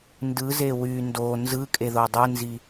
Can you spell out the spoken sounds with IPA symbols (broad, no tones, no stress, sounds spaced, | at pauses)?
n d ɯ z e w y n d o n z ɯ kʼ e ð o dˤ ɯ n z i